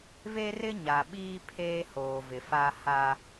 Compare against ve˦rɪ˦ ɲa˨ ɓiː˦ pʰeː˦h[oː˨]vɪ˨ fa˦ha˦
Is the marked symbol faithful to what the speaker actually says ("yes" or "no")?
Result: yes